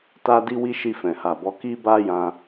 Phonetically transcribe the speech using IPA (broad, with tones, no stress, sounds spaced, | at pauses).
t a˧ d i˧ w i˧ ʃ i˧ f ɛ̃˨ h a˨ b ɔ˨˦ k i˦ b a˦ j ã˧